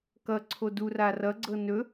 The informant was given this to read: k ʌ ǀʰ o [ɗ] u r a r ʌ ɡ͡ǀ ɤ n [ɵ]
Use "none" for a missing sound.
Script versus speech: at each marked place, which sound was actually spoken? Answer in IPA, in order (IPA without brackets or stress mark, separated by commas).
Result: d, ɵ